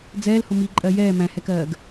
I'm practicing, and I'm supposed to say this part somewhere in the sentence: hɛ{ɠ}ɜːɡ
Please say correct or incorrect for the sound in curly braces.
incorrect: k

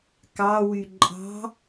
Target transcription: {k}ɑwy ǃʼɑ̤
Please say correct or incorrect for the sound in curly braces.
correct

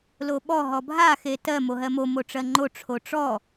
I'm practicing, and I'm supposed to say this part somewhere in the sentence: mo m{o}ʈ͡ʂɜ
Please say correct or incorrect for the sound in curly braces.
correct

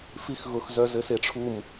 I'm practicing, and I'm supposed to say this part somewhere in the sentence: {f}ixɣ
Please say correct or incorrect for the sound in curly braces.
correct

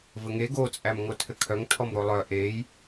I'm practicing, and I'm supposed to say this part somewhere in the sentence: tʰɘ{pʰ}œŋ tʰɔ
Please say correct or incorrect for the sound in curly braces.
incorrect: kʰ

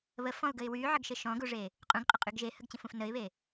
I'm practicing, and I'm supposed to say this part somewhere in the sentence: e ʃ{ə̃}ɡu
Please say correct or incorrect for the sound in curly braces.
incorrect: ɔ̃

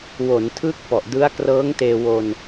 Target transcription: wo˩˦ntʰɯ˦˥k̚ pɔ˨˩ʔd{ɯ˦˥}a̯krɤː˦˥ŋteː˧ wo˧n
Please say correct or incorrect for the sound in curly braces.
correct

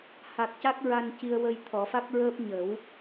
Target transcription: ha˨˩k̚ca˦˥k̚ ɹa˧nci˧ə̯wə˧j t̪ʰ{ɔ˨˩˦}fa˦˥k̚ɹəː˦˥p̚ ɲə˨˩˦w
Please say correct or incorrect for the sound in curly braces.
correct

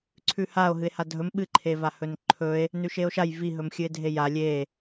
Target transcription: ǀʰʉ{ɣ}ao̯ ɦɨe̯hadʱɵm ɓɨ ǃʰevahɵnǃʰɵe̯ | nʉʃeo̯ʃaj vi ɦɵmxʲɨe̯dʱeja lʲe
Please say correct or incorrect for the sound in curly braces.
incorrect: h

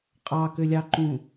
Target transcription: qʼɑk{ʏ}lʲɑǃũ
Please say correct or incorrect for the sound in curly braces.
correct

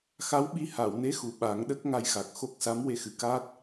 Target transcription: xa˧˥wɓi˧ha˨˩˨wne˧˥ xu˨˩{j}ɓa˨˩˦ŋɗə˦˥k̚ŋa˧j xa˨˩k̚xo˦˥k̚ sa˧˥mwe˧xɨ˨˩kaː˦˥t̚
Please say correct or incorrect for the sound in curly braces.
incorrect: none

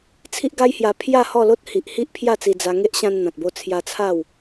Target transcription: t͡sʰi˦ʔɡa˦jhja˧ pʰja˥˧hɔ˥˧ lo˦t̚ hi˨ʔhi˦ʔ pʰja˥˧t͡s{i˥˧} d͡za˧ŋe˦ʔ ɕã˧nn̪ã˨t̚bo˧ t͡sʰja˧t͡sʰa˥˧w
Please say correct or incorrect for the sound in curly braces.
incorrect: i˧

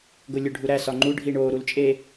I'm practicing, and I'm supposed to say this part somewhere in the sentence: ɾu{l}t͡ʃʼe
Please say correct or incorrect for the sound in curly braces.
correct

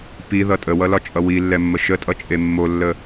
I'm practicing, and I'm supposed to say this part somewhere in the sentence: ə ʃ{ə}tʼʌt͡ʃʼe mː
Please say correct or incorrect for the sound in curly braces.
correct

